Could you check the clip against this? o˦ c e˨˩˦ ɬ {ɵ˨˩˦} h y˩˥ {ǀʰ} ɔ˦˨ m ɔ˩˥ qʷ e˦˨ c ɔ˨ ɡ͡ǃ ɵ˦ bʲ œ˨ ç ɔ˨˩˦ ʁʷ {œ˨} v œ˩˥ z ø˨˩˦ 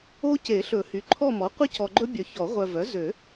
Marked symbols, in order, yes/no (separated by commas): yes, no, yes